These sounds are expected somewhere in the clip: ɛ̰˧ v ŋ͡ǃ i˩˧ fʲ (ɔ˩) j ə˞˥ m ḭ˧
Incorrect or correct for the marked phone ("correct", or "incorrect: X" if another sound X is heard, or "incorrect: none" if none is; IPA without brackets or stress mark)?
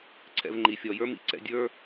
incorrect: ɔ˩˧